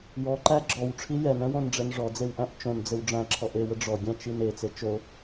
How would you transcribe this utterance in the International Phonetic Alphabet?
jɔǃæ ɡ͡ǁɔwʈ͡ʂʰi jɛnɛ̃wõnɖ͡ʐɛn ʐɔd͡zewʔæ̃ʔ t͡ʃõnd͡zɘw ɖ͡ʐæ̃ǁʰɔʔ ewə ɖ͡ʐɔɡʲæ̃t͡ʃin et͡se t͡ʃo

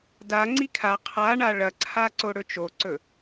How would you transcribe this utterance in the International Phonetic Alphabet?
da ŋ͡ǀikʰa qʰaɳa ɭɐǀʰaǀo ɽɵt͡ʃoǀɵ

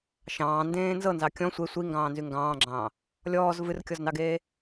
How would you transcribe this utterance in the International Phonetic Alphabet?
ʃɑ̃ːndẽː nzɤnzɑ kʲɔ̃ sʷe sʷi ŋɡɑ̃ːnzyŋɡɑ̃ːɡ͡ǁɑ̃ː | lʲɔːz vɨrkʲɔznɑɡeː

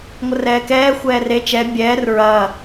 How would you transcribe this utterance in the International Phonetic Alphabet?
ŋʷərɛːkɛː xʷɛːre t͡ʃɛ bʲɛːr ɹɐː

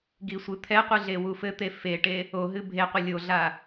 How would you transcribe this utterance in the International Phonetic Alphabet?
ɡisʷɨt̪ʰɛqʷɨ ɮewufɘt̪e feʈe | oɦɨ bʱeqʷɘ lʲoɮa

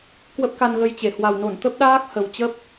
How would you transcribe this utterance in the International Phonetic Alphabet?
kwə˦˥p̚ka˧nɣə˧jt͡ɕe˧˩ hwa˨˩wno˧˩n t̪ə˦˥p̚ɗaː˦˥k̚ hə˨˩wt͡ɕə˦˥p̚

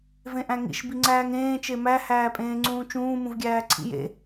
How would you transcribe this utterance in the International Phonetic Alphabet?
vẽʔæ̃ŋḭʃ biŋ͡ǀæːŋẽː t͡ʃemæ hæːpʼẽːŋ͡ǀũːt͡ʃũː mũvɡʲæːǀʰḭjḛ

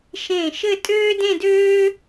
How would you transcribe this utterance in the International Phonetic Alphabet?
ʃẽ˧˩ʃɘ˥˧ tʼøː˥dẽ˥˧døː˥

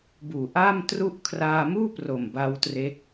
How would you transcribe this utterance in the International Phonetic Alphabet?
buː˨˩ʔaː˥˩mtru˥˩ʔ kʰraː˧muː˥˩pro˨˩m ba˦˥wtre˦˥k̚

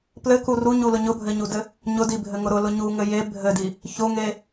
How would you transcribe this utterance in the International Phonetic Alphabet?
plɘku ruɲulʊ ɲʊbʱɘɲudɘ | ɲʊdibʱɘŋʊ ɾʊlʊ ɲuŋɘ je bʱɘdi | çʊŋe

